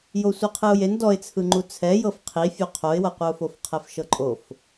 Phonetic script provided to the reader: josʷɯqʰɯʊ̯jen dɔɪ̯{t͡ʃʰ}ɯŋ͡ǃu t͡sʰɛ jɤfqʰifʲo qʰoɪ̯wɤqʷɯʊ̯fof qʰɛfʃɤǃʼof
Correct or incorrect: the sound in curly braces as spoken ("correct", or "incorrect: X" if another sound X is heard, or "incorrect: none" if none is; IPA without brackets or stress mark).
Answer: incorrect: t͡sʰ